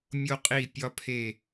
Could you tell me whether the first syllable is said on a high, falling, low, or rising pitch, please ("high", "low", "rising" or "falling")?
high